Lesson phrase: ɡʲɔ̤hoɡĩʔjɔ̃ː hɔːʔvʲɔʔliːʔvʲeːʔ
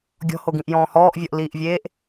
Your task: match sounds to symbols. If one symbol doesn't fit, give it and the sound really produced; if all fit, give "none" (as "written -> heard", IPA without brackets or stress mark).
none